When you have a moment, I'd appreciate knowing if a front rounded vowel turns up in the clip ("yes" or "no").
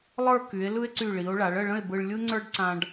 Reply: yes